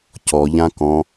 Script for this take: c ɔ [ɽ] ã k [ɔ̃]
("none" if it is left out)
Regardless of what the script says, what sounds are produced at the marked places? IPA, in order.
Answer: ʎ, ɔ̃

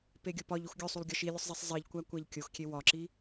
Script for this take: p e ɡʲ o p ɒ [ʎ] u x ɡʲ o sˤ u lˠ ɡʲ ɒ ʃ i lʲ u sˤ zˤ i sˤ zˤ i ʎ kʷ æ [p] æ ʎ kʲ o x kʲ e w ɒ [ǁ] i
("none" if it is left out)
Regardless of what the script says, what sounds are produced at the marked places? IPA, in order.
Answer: ʎ, kʷ, ǁ

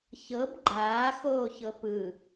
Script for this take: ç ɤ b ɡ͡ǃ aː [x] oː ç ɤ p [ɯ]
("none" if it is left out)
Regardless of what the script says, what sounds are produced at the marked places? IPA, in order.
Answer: x, ɯ

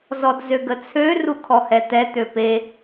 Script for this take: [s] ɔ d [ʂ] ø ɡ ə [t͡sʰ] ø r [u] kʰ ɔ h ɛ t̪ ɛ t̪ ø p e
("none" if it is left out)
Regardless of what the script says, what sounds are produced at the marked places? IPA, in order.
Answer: z, z, t͡sʰ, u

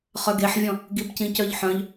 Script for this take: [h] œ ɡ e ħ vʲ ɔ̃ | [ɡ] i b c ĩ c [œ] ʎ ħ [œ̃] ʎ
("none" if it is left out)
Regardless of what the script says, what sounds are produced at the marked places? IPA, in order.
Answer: χ, ɡ, œ, œ̃

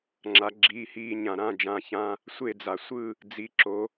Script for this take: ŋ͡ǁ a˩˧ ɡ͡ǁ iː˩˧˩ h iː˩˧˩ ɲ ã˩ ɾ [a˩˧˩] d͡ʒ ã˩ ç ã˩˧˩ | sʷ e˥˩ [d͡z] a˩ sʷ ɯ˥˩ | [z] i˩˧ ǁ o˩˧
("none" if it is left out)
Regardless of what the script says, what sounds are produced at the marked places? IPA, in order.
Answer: ã˩˧˩, d͡z, d͡z

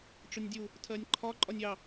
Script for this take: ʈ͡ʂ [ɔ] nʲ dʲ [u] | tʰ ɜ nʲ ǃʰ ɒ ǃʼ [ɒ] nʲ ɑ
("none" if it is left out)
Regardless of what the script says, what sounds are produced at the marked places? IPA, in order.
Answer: ʊ, u, ɒ

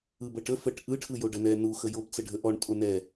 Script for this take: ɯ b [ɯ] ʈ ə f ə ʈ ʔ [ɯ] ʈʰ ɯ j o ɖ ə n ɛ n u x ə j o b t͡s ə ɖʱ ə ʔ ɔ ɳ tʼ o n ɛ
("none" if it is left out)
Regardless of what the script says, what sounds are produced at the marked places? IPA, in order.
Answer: ə, ɯ

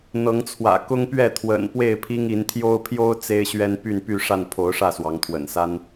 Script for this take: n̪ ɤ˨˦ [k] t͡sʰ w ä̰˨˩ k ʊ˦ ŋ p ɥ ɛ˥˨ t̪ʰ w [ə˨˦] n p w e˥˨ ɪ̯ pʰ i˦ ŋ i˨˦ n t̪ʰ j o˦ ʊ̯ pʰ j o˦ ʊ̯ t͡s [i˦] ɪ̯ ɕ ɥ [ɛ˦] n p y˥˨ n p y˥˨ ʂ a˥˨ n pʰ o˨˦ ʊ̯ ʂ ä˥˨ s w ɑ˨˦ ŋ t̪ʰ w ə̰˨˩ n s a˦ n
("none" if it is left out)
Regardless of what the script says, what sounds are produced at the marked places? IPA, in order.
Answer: ŋ, ə̰˨˩, e˦, ɛ˦

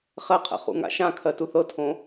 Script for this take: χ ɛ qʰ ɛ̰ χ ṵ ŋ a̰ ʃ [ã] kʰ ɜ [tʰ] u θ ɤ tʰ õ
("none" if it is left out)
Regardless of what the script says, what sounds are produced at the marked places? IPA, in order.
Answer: ã, t

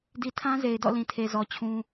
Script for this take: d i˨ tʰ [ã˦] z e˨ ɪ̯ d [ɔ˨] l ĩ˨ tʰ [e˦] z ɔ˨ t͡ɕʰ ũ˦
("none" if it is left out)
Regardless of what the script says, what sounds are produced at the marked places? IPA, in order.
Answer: ã˦, ɔ̰˦˨, e˨

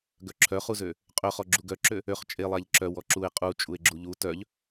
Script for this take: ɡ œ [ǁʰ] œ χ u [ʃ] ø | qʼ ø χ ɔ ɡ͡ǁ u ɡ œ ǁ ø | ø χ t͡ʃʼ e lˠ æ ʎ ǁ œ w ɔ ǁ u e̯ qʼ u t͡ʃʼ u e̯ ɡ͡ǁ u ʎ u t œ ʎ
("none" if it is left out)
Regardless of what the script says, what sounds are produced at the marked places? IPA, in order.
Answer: ǁʰ, z

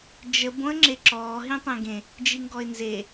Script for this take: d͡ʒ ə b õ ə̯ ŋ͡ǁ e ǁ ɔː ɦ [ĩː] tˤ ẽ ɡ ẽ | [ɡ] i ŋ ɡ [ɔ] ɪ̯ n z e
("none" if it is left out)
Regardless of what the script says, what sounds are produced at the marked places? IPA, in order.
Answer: ĩ, d͡ʒ, ɔ

